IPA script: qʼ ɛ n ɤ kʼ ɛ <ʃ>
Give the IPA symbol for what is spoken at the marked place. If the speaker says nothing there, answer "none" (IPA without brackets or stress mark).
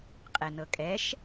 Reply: ʃ